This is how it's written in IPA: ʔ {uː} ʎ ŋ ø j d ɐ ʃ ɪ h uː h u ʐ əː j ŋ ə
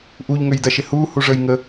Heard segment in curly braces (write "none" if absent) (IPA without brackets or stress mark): u